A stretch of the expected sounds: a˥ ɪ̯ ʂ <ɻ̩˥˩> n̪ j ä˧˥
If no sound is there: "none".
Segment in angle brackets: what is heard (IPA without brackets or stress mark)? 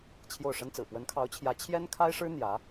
ɻ̩˥